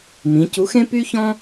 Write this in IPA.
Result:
mĩ˩˧ cu˨˥xẽ˥ py˥çɔ̃˥

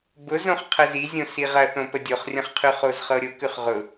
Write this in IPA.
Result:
bʊzõχ qʰəzizʲõ siʁɐθõ pədʲoχrʲɐ̃χqʰʉ χozχɤɾʲʊ kʉχʁʊ

